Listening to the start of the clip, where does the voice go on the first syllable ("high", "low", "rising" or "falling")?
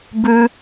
high